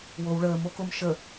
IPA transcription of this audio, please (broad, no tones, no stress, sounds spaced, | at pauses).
w o w ɭ əː m o k o m ʃ ə